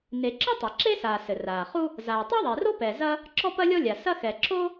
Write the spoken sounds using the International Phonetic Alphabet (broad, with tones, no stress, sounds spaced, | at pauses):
n e˩ ǁ ɨ˥ tˤ a˩ ǁ e˥ s aː˩ s ɘ˩ r aː˩ χ u˥ | z aː˩ tˤ ɛ˥ ðˤ e˩ r o˥ p ɛ˩ z ɐ˥ | ǁ ɔ˥ p ɐ˥ lʲ ɔ˥ lʲ a˩ s ɐ˥ x ɛ˩ ǁ o˥